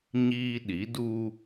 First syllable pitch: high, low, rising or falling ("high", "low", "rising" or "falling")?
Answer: high